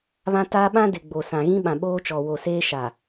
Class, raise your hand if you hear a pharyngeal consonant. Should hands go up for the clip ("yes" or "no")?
no